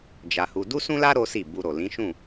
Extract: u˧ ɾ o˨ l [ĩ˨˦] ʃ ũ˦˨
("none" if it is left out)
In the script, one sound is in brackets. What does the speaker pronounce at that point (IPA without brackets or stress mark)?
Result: ĩ˨˦